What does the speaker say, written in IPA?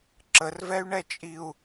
ǁ ə r v ɛ y̯ ɳ ɛ t͡ʃʼ i u̯

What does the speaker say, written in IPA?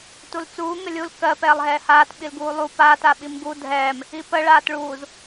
t u l t͡s uː ŋ ə lʲ u l k ɜ p ɛː lˠ ɦ ɛː h aː t ɓ i l ɡ uː lˠ u p aː t a ɓ i m ɡ u dʱ ɛː m | i p ə ɭ aː t ɭ uː z

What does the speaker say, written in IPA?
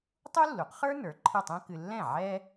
tˤ u˥ lː u˩˥ q χ ə˞˥ n ə˞˩˥ ǃʰ ɨ˥˩ tˤ ɛ̃˥ k ɨ˧ lː ɛ̃˥˩ ʕ ɛ˥

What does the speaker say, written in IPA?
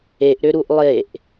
e ʔ ɾ ʏ ɾ u ʔ lˠ e ʔ

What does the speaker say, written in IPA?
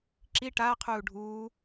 ǁ i ʈ a qʰ uː ɖʱ uː

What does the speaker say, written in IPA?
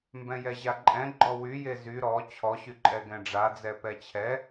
m b ɛ̃ j ɛ ʑ a ǃʼ ɛ̃ ɡ͡ǃ ɔ w y j e z y ɾ ɔ t͡ɕʰ ɔ ɕ y ǃʼ ɛ ɡ ɛ̃ ɖ͡ʐ a d͡z ɛ p ɛ t͡ɕʰ ɛ

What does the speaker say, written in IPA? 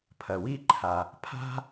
pʰ ɐ˩ w i˥ ǃʰ a˩ | pʰ a̤˥

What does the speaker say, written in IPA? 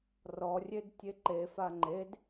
r ɔ rʲ e d tʲ e ǃ e f a ŋ͡ǃ e d

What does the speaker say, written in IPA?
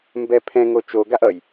m b ɛ pʰ ɛ̃ ŋ o t͡ʃ o ɡ a ʔ ʌ j

